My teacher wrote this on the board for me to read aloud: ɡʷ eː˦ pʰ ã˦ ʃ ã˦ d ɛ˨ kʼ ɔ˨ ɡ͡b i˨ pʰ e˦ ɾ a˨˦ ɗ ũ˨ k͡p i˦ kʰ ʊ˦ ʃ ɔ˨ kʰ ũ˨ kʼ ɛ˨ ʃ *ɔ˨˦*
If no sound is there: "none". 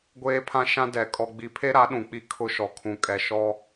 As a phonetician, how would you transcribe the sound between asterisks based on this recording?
ɔ˦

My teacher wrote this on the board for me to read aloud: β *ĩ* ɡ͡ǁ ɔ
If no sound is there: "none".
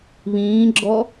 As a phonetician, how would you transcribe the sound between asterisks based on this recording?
ĩː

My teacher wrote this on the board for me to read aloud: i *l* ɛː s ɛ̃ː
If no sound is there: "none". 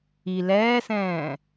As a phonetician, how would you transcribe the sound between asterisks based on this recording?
l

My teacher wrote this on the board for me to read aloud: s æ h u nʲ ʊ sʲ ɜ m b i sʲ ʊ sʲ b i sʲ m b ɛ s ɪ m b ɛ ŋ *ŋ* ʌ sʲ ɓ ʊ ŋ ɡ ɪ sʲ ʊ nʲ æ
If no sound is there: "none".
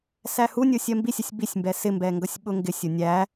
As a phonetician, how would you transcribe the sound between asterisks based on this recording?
ɡ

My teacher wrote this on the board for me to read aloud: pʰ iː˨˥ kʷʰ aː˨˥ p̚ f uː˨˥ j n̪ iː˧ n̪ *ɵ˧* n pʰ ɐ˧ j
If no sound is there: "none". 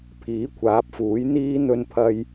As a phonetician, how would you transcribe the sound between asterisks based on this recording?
ɵ˧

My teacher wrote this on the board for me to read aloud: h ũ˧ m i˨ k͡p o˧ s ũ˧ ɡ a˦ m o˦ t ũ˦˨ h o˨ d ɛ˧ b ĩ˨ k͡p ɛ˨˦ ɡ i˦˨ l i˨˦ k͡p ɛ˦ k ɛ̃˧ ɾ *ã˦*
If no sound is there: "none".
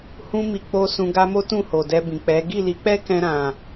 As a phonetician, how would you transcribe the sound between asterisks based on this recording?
ã˨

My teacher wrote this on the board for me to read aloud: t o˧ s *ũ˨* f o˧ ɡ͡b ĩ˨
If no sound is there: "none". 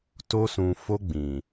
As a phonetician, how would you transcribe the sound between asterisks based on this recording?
ũ˨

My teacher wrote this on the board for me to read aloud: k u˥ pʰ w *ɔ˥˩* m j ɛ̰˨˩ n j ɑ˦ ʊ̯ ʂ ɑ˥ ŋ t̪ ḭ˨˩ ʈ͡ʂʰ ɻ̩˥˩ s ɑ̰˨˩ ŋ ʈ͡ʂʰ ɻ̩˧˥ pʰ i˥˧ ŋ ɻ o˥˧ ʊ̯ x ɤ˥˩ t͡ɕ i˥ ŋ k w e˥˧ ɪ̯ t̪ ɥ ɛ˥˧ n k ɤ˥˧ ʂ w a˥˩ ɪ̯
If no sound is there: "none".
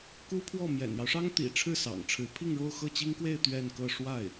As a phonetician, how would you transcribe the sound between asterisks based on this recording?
ɔ˥˩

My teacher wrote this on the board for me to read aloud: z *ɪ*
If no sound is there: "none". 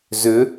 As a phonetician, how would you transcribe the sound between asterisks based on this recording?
ʏ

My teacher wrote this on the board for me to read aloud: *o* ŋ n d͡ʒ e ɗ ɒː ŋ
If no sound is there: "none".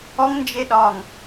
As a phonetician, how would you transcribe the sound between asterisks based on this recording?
ɔ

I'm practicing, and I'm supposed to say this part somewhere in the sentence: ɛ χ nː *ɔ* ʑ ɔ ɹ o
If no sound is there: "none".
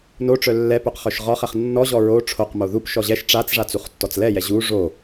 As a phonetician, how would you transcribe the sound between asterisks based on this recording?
ɔ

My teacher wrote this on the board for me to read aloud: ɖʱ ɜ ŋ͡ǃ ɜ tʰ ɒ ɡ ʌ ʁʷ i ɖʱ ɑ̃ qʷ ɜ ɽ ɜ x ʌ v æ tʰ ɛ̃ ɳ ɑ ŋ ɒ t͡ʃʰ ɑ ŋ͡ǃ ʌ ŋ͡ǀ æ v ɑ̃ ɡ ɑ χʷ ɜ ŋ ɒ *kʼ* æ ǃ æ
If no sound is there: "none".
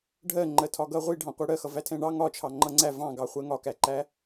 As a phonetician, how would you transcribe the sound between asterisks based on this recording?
k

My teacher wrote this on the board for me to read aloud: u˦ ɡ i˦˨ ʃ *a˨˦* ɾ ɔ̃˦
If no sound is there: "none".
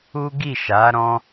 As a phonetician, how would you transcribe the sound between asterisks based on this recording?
a˨˦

